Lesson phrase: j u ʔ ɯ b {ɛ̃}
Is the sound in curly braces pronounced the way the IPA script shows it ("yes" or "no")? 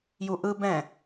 yes